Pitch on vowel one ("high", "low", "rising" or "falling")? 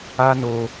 high